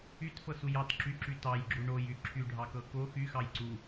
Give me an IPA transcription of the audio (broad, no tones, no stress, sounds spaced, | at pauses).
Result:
y t f ɤ s u j ɑ t ǁ y ǁ y t ɑ j ɡ͡ǁ u ɳ o j y ǁʰ y ɖʱ ɑ k ɤ k o x y x ɑ j ǀ u